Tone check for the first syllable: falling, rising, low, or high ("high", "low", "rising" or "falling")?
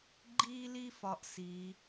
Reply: high